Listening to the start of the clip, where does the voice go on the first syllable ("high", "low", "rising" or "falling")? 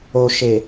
low